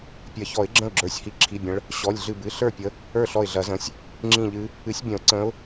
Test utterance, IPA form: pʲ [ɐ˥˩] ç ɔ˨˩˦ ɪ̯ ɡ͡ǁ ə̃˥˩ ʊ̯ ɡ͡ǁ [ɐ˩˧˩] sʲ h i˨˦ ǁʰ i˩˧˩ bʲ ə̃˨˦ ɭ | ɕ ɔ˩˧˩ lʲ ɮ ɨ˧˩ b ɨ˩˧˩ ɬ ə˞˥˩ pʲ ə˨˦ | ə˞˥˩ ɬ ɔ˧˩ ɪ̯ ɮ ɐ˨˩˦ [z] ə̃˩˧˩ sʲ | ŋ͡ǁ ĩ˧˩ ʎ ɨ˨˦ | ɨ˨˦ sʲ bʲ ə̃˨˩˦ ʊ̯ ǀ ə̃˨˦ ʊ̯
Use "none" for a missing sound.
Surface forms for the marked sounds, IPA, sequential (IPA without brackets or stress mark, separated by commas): ɐ˨˩˦, ə˞˩˧˩, z